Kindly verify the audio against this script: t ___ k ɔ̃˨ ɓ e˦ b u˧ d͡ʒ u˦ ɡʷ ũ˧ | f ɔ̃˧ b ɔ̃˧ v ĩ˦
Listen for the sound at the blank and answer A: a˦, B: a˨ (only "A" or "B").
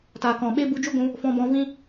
B